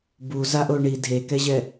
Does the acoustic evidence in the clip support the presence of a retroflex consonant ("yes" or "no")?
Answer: yes